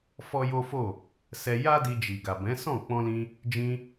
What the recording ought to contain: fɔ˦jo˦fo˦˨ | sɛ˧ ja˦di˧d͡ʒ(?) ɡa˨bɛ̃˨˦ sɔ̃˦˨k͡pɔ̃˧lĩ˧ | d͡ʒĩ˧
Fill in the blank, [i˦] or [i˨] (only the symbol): i˨